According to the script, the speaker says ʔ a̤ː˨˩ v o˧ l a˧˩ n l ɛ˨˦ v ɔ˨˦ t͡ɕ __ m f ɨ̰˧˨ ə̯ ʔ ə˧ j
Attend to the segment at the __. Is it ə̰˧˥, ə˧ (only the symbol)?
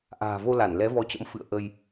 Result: ə̰˧˥